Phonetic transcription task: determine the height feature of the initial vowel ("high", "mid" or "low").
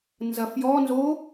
low